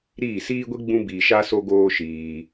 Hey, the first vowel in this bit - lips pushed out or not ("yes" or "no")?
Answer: no